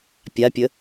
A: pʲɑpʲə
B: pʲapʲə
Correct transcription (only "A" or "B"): B